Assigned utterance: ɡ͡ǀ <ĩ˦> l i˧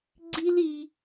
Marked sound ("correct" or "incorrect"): incorrect